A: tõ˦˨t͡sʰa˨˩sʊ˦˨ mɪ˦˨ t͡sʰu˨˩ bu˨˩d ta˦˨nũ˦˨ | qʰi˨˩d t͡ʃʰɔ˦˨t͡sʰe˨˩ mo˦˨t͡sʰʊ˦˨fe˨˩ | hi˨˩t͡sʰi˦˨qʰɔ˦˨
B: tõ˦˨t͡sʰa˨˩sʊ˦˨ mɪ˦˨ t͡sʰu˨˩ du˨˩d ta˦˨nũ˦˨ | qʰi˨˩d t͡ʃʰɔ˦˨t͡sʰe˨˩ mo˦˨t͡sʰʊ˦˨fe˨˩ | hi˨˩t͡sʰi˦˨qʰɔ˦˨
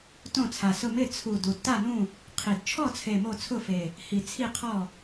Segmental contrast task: B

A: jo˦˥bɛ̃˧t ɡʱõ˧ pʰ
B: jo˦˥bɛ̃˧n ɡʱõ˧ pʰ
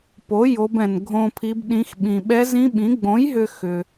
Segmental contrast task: B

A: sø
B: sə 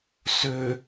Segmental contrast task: A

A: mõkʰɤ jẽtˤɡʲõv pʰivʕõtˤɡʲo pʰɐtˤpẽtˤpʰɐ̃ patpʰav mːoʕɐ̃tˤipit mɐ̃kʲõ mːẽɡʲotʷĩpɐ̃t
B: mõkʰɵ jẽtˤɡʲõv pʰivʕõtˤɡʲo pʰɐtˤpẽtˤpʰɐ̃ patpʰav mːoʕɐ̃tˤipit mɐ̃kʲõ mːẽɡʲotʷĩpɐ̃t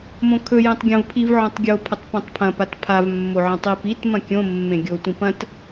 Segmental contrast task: B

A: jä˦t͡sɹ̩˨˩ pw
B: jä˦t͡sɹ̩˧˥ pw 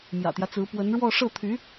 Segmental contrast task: B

